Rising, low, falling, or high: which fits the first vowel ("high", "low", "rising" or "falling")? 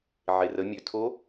low